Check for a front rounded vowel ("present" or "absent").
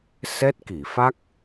absent